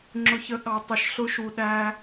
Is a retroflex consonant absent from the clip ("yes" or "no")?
yes